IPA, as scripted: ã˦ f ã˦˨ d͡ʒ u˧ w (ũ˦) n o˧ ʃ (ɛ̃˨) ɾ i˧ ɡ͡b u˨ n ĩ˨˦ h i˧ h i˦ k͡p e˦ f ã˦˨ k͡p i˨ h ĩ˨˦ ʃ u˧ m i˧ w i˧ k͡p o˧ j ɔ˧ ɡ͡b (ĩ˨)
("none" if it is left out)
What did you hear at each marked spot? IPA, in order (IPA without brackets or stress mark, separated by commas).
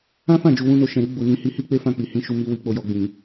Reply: ũ˦, ɛ̃˨, ĩ˨